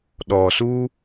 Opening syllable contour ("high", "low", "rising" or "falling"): low